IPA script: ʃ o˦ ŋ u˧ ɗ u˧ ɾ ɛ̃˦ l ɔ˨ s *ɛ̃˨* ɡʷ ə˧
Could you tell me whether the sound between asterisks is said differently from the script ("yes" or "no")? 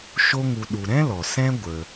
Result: yes